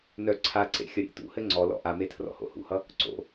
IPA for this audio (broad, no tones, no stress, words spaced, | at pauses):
nœ ǀʰaǀḛ xʲʌɾʲḛtṵhɘ ŋ͡ǀɔlɔ̰ ʔame tʰrɔ̰ho̰hṵhʌ | ǀo̰